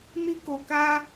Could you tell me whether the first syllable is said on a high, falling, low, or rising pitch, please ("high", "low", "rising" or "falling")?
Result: high